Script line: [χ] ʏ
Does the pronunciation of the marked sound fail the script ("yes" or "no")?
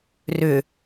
yes